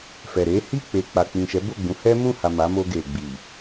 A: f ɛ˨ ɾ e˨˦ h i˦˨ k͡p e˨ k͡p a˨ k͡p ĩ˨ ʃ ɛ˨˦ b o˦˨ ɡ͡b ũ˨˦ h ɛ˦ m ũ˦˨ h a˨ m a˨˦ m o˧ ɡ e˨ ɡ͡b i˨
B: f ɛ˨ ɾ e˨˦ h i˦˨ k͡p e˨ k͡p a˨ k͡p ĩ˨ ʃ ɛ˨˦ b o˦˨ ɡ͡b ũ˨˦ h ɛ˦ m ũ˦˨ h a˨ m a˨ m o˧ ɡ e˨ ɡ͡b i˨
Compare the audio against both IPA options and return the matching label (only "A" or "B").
A